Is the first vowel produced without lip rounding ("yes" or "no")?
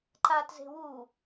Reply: yes